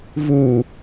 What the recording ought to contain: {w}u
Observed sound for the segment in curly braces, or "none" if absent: v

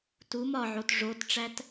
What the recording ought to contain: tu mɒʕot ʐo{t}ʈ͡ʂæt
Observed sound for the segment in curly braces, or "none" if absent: t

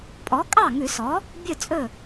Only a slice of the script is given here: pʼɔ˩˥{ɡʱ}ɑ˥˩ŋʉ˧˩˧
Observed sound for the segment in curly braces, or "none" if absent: kʼ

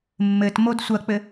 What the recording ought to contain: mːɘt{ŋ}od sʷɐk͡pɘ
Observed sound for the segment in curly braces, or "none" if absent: m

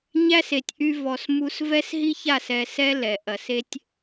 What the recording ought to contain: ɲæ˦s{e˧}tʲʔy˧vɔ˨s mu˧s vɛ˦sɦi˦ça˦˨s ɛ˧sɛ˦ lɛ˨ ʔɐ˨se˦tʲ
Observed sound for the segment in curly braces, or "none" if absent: e˨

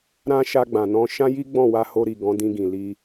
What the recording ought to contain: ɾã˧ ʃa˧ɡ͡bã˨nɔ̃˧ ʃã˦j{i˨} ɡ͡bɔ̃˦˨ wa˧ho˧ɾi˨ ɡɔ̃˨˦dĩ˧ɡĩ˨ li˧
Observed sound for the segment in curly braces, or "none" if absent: i˦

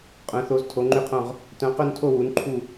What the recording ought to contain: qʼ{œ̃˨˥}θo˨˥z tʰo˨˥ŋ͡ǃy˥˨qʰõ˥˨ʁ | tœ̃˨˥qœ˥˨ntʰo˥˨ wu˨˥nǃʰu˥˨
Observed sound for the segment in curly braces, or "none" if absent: œ̃˨˥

